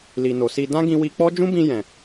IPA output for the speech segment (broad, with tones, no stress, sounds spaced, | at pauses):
l i˨ n o˨ s i˧ d ã˦ ɡ ĩ˧ w i˧ k͡p ɔ˦ d͡ʒ ũ˦ b ĩ˧ j ɛ̃˨